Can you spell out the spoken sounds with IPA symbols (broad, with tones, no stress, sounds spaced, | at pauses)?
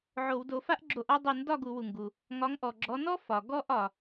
ʕ o˧˩˧ w d o˧˩˧ f a˥ ʔ ɡ͡ǁ o˧˩˧ ʔ ɒ˥˧ dˤ u˧˩˧ n d ɒ˥˧ ɡ u˧˩˧ w u˩ ŋ ɡ u˩ | ŋ ɒ˨˦ ŋ ʔ ɔ˩ ɡ͡ǁ ɔ˨˦ n ɔ˥ f ɒ˩ ɡ ɔ˥˧ ʔ ɒ˩